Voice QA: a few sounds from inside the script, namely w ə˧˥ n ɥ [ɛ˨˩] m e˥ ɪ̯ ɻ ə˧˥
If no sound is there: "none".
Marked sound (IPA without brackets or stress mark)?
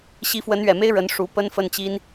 ɛ˨˩